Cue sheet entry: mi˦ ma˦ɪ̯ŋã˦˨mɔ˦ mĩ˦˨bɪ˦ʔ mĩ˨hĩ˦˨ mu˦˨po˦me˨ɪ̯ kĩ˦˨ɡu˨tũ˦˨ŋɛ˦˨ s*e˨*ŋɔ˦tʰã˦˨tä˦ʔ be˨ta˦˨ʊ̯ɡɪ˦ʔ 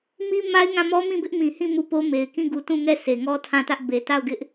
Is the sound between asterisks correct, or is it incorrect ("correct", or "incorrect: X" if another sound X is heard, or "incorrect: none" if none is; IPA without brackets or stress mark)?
correct